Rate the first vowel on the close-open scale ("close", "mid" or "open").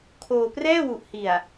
mid